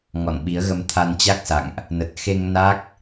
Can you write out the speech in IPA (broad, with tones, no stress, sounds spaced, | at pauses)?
ŋ ɔ̰˧˨ n ɓ i˨˦ ə̯ ɣ ə˧ m t̪ʰ a˧ n t͡ɕ a˦˥ k̚ s a̰˧˨ ŋ ʔ | n ə˨˩ t̚ x e˧ ŋ n a˦˥ k̚